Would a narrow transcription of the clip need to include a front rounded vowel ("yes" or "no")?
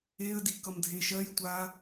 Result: no